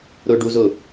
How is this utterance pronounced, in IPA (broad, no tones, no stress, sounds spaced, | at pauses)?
ɾ ʊ ɖ u z ʊ